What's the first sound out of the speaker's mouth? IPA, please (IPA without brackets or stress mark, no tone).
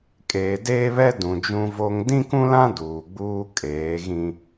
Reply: kʼ